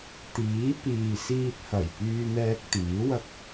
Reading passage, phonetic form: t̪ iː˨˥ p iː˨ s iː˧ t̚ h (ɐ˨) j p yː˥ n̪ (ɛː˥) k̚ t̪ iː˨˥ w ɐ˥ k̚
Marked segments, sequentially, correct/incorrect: incorrect: ɐ˨˩, correct

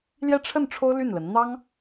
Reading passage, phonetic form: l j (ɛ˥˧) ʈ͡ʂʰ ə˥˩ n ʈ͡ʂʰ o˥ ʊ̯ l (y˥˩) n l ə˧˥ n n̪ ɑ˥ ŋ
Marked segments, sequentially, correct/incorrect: correct, correct

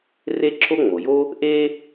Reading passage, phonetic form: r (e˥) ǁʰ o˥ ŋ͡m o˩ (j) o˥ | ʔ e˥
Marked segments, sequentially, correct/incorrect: correct, correct

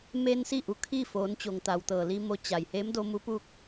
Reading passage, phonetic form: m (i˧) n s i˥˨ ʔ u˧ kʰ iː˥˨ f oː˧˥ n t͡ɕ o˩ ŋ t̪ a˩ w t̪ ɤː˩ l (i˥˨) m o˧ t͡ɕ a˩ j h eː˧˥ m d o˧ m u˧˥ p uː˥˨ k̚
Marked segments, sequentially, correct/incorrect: incorrect: e˧, incorrect: i˧

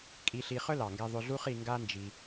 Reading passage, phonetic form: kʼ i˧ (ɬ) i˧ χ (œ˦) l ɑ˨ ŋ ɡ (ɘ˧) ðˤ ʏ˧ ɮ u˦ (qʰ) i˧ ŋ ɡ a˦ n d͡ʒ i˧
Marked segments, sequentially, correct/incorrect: correct, correct, incorrect: ɛ˧, incorrect: χ

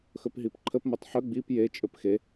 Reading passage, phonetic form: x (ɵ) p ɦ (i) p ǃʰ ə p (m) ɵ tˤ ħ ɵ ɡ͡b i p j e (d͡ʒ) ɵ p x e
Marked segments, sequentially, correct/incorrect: correct, correct, correct, incorrect: t͡ʃʼ

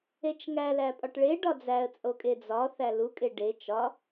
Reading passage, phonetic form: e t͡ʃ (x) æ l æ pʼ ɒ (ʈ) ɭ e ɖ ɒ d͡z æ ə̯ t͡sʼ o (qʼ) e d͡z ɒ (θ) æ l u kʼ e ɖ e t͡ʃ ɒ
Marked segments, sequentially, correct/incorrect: incorrect: ŋ, correct, incorrect: kʼ, correct

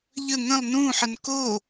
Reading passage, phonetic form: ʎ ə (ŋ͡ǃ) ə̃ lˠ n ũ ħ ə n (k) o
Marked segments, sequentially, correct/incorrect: incorrect: ŋ, correct

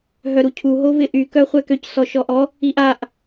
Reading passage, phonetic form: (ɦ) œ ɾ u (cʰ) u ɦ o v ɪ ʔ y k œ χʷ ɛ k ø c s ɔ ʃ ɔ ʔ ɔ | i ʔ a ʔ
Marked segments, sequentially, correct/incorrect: correct, correct

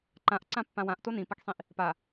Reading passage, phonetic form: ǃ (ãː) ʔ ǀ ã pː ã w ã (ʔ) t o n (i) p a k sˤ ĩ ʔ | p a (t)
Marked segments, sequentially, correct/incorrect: incorrect: ã, correct, incorrect: ĩ, incorrect: none

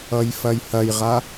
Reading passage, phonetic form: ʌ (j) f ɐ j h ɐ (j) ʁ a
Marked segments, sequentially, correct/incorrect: correct, correct

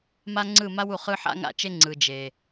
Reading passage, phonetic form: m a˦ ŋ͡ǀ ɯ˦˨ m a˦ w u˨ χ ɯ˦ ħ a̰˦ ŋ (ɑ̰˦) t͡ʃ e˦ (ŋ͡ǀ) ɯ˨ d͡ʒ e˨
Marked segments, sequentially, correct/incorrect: incorrect: a̰˦, correct

